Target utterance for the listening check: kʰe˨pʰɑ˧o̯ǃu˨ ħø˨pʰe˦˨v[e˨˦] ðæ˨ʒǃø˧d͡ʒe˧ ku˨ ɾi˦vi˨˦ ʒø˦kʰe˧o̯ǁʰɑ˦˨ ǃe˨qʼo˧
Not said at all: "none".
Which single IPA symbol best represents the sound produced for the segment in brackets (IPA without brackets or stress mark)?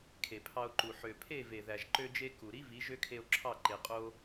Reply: e˨